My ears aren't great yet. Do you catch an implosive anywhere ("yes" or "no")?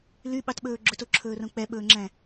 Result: yes